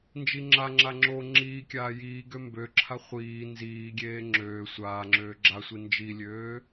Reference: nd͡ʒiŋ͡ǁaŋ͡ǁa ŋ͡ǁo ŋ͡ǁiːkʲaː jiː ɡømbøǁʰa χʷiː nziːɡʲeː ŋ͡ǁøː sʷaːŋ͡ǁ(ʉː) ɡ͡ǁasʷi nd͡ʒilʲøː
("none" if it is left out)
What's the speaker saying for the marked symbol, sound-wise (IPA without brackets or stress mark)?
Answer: øː